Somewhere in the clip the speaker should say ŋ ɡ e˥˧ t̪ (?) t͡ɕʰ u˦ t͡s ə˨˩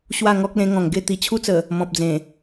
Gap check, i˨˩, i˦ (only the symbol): i˨˩